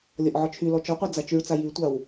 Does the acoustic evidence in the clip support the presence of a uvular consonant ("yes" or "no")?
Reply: yes